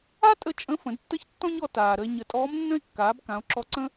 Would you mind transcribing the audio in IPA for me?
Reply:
a˥ tʼ ə˧ t͡ʃʼ ə̃˧˥ f ə̃˩˧ d tː ə˥ ç tː ɔ̃˥ ɲ ɔ˧ t aː˩ ɾ ə˧ e̯ ɲ ə˩˧ tʼ ɔː˧˥ m nː ə̃˥ e̯ kː aː˩˧ b k ã˩˧ o̯ ǁ ɔ˧˥ ǀ ə̃˥

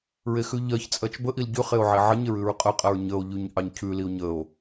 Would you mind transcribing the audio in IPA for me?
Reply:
ɹ e x ʉ ʎ ɜ ç t͡sʼ ɜ t͡ʃ b ə ʔ i l ɟ ʉ χ e o̯ ʕ e ʕ ə ɲ e ɹ ʉ ɹ qʼ ə qʼ ɜ ɹ ɲ ə o̯ ʎ ʉ ɲ ʔ ɑ ɲ cʰ ʉ l i o̯ ɲ ə o̯

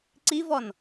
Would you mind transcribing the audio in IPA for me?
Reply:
ǀ i v ɔ n

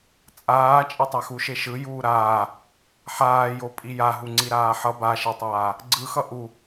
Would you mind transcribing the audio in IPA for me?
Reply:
t͡sʼ aː t͡ʃʼ e tˤ a x u ʃ e ʃ ɯ j uː ɾ aː | ħ aː j o pʼ i j a ɦ u ŋ͡ǀ i ɾ aː ħ ʌ b a ʃ e tˤ aː | ɡ͡ǀ ɯ x ʌ ʔ u

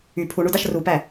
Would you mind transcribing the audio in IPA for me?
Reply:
y pʰ u ɳ u d ɑ ʃ r u p æ

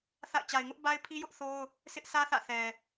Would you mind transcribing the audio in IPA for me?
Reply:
θ a̰˦˨ ɪ̯ t͡ɕ a˨ ɪ̯ ŋ ʊ˦ ʔ b a˦ ɪ̯ pʰ i˦ j ʊ˦ ʔ θ o˦ ʊ̯ | sʰ ɪ˦ ʔ sʰ ä˦ θ ä̰˦˨ θ ɛ˨

